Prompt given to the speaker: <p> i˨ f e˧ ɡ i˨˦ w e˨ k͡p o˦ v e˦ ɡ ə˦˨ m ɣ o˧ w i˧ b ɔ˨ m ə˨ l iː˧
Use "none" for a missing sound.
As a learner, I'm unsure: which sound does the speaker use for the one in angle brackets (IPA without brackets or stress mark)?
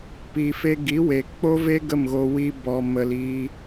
p